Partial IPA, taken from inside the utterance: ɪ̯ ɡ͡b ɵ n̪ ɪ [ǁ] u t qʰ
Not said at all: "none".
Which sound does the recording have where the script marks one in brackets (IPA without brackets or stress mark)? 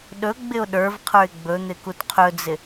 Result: k